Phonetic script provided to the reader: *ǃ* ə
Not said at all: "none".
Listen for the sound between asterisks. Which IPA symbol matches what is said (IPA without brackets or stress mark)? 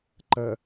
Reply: ǃ